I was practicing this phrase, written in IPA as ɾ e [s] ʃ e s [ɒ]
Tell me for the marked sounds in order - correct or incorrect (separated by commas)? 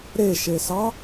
incorrect, incorrect